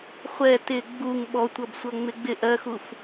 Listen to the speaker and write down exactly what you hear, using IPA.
χʷ ɛ t ɪ ɡ͡b u ŋ ɓ ɔ tʷ ʌ b sʷ ʌ ŋ͡m ɪ ɡ͡b ɪ ʔ ɜ x u f

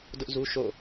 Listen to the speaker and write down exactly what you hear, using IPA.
d ʊ˦ ʔ z u˦ ʃ o̰˦˨

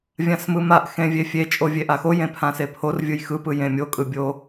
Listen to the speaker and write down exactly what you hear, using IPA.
vʲ ã s m ɯ m a ʔ x ẽ vʲ e fʲ e t͡ʃʼ o vʲ e ʔ a x o j ẽ pʰ ã s e pʰ o r vʲ ɯ j x ɯ p ɯ j ẽ mʲ o kʼ ɯ bʲ o

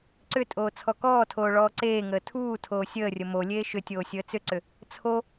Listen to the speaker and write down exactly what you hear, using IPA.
ǀ ʏ tʼ oː t͡sʰ ɔ k ɔː tʰ oː ɭ ɔː ǀ eː ŋ əː tʰ uː tʰ oː sʲ əː rʲ ə m o lʲ eː ʃ ʏ tʲ oː sʲ əː t͡s ʏ ǀ ʏ | t͡sʰ o

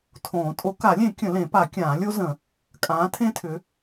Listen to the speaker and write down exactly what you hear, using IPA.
tʰ õː˨˩˦ tʼ o˨˥ k a˨˩˦ lʲ ẽ˨˩˦ kʲ ə̃˨˩˦ l ẽ˨˩˦ p a˨˩˦ kʲ ãː˨˩˦ lʲ o˦˥ z ə̃˨˩˦ | kʼ ãː˨˥ tʰ ẽ˦˥ tʰ ʏ˨˥

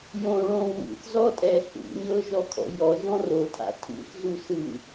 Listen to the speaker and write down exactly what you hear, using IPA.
j õ ɭ õ w ṵ θ z ɔ tʼ ɛ ɬ ṵ ɲ ɤ ʒ ɔ kʰ ɔ̰ j ɔ ʒ ɔ̃ r o tʰ a̰ tʰ ṵ θ z u s ɯ

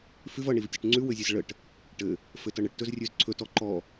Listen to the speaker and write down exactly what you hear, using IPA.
f ʉ v ʌ ɳ i v tʲ ʉ ʈ ŋ͡ǀ ʉ w ɘ zʲ ɘ z ɭ ə ʈ | ʈ ɘ | f ɘ t ʌ ɳ ə ʈ t ɵ z rʲ ʉ z ǀʰ ɵ t ɔ ǃ ɔ

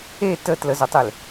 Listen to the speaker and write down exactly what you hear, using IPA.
e t ə t l ə z ø tˤ e l

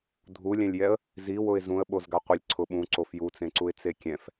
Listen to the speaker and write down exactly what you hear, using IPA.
dʱ u lʲ ɛ̃ lʲ j ɛ ə̯ | z i w ʊ ɪ̯ z ũ ə̯ ɓ o z ɡ a qʷ i lʲ ǀʰ ʊ ɓ ũ ǀ o f j u t͡s ẽ ǀ u ɪ̯ t͡s e kʲ ɛ̃ f

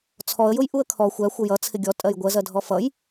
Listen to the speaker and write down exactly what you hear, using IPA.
t͡sʰ ɔ ə̯ j ʊ j ʔ u ə̯ kʰ ɔ xʷ æ xʷ ʌ j ʌ t͡sʰ ɪ ɡʲ ɔ tʼ ɜ j ɡʷ ɜ z ɜ dʱ ɔ f ʌ j

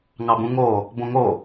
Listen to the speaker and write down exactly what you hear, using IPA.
ŋ ɑ b ũ ŋ o | b õ ŋ o

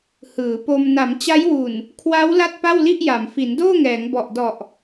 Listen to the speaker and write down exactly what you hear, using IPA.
h ɯː˩˦ p o˧ m n a˩˦ m t͡ɕ a˦˥ j w u˨˩ n | kʰ w a˦˥ w l a˥˩ t̚ p a˥˩ w l i˥˩ ʔ j a˩˦ m f i˩˦ n d oː˥˩ ŋ ɛː˩˦ ŋ b ɔ˨˩ ʔ d ɔ˨˩ ʔ

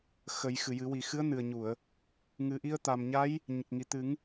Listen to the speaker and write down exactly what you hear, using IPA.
x ə˨˩˦ j x ɨ˨˩˨ j ɨ˨˩˦ w i˨˩ x ɨ˧˥ ə̯ n ɨ˨˩ ə̯ ɲ u˨˩˨ ə̯ | ŋ ɨ˨˩ ʔ i˧ ə̯ t̪ a˨˩ m ɲ a˧˥ j | ɲ ə˨˩ k̚ ŋ i˨˩˨ t̪ ɨ˨˩˦ ŋ

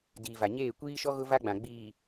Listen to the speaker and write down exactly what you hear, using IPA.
d iː˨ v a˨ ɲ eː˦˨ kʷ iː˦ ʃ ɔ˦ ɣ ʊ˦ v a˦ ɡ͡b ã˨ ɡ͡b iː˨

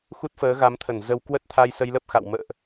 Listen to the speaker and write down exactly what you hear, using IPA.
x u˦˥ t̚ f əː˨˦ ɣ a˨˦ m t̪ʰ ə˧˩ n z ə˧ w k w ə˦˥ t̚ t̪ʰ a˧ j s ə˧ j l ə˦˥ p̚ x a̰˧˨ w m ə̰ː˧˨ ʔ

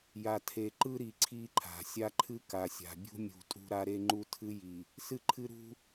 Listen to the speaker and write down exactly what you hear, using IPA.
j a˨ tʰ e˨ ǃ ɯ˦ ɾ i˨ ǀʰ i˦ ǃʰ a̤˨ sʲ a˦ ǃʰ ɨ˦ k a˨ sʲ a̤˨ bʲ ṳ˦ mʲ ṳ˨ tʼ ṳ˦ ɾ a˦ ɾ e˦ ŋ͡ǃ u˦ tʰ ɨ˦ j i˨ | s ɨ˦ ǃʰ ɨ˦ ɾ ṳ˦

